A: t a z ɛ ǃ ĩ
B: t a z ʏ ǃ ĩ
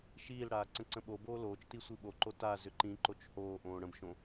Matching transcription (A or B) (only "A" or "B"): B